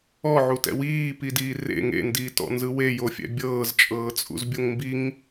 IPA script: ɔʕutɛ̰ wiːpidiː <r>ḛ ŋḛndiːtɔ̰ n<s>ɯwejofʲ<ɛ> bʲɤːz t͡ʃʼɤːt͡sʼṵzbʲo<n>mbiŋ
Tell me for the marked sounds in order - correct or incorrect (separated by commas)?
correct, incorrect, incorrect, incorrect